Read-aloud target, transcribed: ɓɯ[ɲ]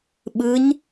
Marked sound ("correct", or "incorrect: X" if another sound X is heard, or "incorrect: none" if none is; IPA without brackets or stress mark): correct